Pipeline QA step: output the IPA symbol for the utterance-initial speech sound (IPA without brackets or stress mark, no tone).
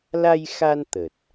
l